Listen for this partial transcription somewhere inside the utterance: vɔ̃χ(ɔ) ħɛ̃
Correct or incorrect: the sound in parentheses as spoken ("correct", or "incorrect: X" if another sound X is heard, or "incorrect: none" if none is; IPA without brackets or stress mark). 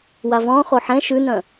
incorrect: o